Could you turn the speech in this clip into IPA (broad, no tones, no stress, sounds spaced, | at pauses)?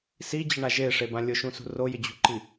s i d͡ʑ ɪ ɳ a ʒ e ʂ e b ã lʲ ʊ ʃ ũ s ṳ r o j ɪ d͡ʑ ṳ ǃ i